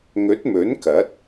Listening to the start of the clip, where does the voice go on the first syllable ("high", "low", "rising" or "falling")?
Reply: rising